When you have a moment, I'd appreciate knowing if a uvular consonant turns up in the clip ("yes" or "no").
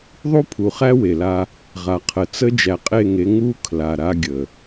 yes